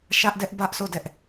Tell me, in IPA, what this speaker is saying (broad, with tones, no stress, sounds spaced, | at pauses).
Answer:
ʃ ä˦ ʔ d ɛ˦ ʔ b ä˦ ʔ sʰ o˦˨ d ɛ˦ ʔ